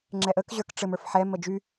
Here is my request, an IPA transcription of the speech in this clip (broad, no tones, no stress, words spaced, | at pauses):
ŋ͡ǁɛʔək ʑə˞kʈ͡ʂɘm ə˞fħɛ məd͡ʒy